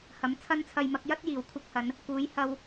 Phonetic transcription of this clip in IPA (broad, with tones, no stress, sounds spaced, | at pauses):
h ɐ˨˥ m t͡sʰ ɐ˥ n t͡sʰ ɐ˧ j m ɐ˨˥ k̚ j ɐ˥ t̚ j iː˨˩ w kʷʰ ɪ˧ k̚ h ɐ˨˧ n | k uː˨˥ j h ɐ˧ w